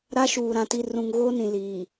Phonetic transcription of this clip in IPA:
ɾ a˦ ʃ uː˨ ɾ ã˨ t i˨ r ũ˨ ŋ ɣ oː˦ n ĩ˨ l iː˨

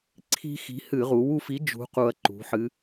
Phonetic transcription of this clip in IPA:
ǀʰ i̤˦ x i̤˨˥ h ɨ˧˩˧ ʁ u˩˧ w u˦˨ f i˨˥ d͡ʒ ṳ˨˥ q u˨˩ ɐ̯ ǃ ṳ˩˧ ħ ɨ˩˧

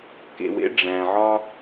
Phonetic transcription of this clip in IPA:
k ḛ˨ w ḛ˦ ɖ͡ʐ æ̃˨ ʕ ɒ˦

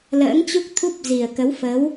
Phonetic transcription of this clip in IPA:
l ə̰ː˧˥ ŋ t͡ɕ u˦˥ k̚ t̪ʰ u˦˥ p̚ z i˨˩ ə̯ k ə˨˦ w f ə˨˦ w

